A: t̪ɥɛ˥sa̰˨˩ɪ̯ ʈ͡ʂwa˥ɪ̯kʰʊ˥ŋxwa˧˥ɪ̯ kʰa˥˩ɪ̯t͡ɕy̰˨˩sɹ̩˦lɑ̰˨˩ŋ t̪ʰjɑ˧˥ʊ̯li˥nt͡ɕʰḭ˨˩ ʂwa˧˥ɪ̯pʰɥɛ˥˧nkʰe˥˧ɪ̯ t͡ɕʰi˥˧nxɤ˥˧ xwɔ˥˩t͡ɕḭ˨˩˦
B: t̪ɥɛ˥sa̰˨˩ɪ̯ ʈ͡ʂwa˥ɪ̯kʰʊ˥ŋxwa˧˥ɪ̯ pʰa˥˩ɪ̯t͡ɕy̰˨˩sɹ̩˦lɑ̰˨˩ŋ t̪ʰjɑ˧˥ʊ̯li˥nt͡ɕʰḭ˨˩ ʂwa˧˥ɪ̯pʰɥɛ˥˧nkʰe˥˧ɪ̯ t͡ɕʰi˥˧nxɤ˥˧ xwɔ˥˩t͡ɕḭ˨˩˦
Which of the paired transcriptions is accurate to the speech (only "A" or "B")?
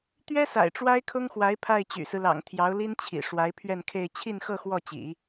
B